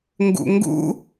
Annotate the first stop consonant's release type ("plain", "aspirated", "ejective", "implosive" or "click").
plain